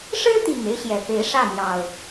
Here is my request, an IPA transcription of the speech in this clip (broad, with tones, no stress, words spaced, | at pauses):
ʂɻ̩˦t̪i˨˩ŋ e˦ɪ̯ɕjɛ˨˩pe˨˦ɪ̯ ʂä˥˨n̪jɑ˨˩ʊ̯